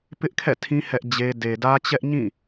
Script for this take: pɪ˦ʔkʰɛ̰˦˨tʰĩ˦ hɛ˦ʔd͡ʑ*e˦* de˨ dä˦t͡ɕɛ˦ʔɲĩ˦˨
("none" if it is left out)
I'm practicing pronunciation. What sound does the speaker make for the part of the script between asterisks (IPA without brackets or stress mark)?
e˦